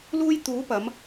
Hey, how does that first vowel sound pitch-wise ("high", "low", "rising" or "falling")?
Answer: high